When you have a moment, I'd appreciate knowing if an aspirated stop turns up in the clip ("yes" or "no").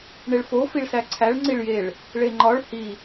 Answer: yes